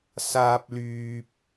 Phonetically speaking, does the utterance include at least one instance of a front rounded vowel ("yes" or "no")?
yes